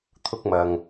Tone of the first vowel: high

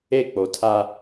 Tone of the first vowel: falling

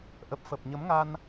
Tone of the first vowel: low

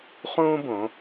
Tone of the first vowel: high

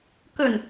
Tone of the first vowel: low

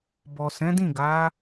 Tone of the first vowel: low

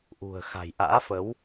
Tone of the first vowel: low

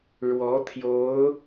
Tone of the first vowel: rising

